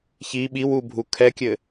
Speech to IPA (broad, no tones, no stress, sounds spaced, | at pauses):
ç i ɓ i w u bʱ u kʰ ɛ kʲ ɘ